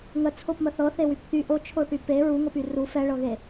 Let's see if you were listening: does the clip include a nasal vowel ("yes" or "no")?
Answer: no